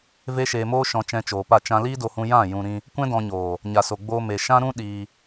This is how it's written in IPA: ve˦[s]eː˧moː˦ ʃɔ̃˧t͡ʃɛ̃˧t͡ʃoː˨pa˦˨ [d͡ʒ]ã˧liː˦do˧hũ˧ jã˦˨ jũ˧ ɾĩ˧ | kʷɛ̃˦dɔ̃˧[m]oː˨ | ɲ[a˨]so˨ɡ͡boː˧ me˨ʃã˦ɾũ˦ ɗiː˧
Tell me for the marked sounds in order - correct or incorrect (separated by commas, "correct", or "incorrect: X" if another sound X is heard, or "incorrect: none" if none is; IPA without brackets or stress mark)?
incorrect: ʃ, incorrect: t͡ʃ, incorrect: ɲ, correct